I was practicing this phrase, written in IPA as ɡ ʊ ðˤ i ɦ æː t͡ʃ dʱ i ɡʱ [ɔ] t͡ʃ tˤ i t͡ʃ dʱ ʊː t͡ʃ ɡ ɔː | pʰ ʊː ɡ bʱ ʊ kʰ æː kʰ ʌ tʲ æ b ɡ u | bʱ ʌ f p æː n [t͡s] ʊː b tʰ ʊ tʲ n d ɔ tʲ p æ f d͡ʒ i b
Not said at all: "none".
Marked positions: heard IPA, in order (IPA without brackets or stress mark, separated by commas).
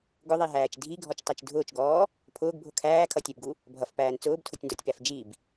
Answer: ɔ, t͡s